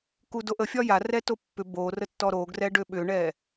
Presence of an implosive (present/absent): present